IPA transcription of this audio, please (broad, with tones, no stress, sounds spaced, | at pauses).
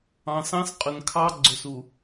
ɑ̃˨ s ɑ̃˦ s qʼ ɵ˨ n kʰ ɑ˦ ɡ͡ǀ ɵ˨ s u˨